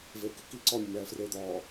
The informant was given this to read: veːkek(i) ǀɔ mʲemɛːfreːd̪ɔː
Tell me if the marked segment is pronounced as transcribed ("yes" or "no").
yes